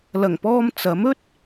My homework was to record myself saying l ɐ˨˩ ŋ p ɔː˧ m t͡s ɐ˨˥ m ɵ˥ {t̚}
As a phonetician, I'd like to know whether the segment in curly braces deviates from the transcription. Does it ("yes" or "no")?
no